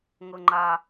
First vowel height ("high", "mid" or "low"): mid